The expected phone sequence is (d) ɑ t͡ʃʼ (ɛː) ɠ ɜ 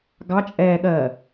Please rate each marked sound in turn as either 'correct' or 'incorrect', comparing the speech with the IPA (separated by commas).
incorrect, correct